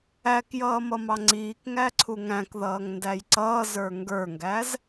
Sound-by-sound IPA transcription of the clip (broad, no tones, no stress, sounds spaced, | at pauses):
æ k j ʌː m ʌ m ɑ ŋ͡ǀ iː k ŋ æ ǀʰ u ŋ æ̃ k ð ʌː ŋ n d æ j ǀ ʌː z ə˞ ŋ ɡ ə˞ ŋ ɡ æ z